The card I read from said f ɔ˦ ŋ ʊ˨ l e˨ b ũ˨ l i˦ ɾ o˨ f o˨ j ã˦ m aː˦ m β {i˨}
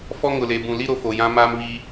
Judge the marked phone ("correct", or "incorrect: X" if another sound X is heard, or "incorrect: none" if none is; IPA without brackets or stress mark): incorrect: i˦